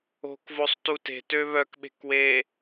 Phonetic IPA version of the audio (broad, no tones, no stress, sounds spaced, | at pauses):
o̤ k v o sˤ t u t e̤ t ø β œ k ɓ e̤ k w e